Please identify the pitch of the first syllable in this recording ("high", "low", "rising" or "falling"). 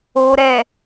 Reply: low